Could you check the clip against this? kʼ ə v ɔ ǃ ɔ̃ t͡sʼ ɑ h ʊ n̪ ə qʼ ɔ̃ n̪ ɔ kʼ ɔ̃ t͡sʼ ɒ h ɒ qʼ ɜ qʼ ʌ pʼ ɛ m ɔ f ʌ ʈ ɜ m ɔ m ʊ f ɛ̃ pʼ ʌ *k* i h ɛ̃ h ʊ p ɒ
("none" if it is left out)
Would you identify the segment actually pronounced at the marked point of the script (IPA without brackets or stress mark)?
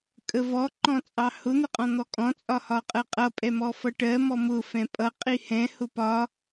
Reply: qʼ